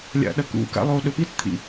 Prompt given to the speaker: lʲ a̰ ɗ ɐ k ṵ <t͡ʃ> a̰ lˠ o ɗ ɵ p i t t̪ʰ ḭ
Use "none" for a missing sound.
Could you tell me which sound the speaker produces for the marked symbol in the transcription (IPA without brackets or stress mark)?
k